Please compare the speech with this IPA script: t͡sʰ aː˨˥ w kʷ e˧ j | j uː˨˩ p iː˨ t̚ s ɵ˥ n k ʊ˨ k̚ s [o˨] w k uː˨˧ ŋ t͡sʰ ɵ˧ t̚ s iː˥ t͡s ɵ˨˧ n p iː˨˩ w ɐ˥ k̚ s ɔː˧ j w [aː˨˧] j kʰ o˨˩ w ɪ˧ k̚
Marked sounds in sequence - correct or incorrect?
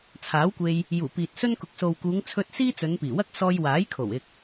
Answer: correct, incorrect: aː˨˥

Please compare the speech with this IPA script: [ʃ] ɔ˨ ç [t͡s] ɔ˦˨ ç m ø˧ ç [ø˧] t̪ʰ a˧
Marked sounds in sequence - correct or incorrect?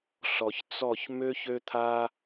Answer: incorrect: ɬ, correct, correct

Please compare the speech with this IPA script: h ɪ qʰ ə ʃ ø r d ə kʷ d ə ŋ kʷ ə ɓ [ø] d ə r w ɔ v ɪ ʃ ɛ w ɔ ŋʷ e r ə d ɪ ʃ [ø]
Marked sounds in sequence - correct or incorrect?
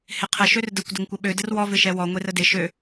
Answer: correct, correct

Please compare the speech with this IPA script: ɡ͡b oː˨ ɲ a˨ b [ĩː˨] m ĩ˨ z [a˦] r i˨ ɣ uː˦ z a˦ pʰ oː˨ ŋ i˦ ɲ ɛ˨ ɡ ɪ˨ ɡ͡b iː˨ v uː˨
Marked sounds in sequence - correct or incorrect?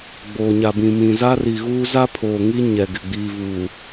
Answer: incorrect: ĩ˨, correct

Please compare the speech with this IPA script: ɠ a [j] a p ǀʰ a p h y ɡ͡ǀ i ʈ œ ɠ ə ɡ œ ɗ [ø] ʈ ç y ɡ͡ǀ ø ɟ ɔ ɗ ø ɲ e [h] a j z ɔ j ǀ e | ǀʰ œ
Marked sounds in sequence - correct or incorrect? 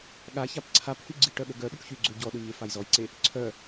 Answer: incorrect: ç, incorrect: y, incorrect: f

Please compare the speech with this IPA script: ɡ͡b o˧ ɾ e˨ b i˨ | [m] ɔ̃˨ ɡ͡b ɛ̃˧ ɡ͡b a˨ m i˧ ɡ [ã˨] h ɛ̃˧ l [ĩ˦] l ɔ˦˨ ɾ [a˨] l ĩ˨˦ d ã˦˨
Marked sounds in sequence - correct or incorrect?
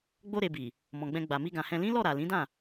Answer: correct, correct, correct, correct

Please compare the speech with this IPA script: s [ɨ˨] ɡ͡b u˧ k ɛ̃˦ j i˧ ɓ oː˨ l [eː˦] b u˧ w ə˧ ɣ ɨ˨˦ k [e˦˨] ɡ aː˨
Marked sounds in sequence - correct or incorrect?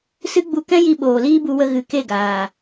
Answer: incorrect: ɨ˦, incorrect: iː˦, correct

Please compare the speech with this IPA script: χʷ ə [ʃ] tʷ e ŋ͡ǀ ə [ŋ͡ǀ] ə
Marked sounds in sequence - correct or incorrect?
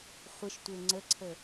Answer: correct, incorrect: ǀʰ

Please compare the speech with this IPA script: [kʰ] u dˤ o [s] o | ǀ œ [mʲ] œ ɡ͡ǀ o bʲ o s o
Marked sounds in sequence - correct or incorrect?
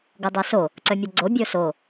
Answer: incorrect: ɡ, correct, correct

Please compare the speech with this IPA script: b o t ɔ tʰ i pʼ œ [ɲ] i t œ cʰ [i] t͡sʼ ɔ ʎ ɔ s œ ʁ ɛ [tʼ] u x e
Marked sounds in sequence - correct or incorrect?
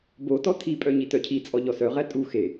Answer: correct, correct, correct

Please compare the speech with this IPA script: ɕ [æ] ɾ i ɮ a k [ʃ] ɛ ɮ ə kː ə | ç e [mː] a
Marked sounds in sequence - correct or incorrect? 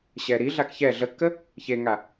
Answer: incorrect: ɛ, incorrect: ç, incorrect: ŋ

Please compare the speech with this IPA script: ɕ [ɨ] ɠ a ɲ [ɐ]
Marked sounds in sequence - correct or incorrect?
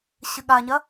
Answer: correct, correct

